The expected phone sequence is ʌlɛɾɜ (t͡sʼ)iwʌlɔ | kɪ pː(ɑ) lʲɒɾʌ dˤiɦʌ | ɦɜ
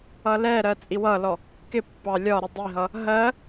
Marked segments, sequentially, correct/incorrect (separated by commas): correct, correct